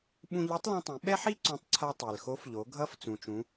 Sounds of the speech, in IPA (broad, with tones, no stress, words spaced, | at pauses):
ɓũ˧ʎɯ˧˥tˤlũ˧ tˤĩ˩˧ɓɛ˥ħi˥ ǀõ˧˥tˤǀʰa˧ tˤe˩lxo˧˥fʎo˩˧ ɡʱʌ˧˥f t͡sũ˩t͡ʃũ˩˧